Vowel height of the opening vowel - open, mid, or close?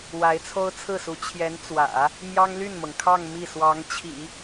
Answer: open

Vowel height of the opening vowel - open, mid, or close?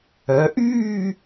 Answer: mid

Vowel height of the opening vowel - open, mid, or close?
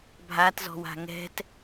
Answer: open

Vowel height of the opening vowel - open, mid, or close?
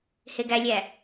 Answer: mid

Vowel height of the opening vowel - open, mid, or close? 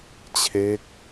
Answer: mid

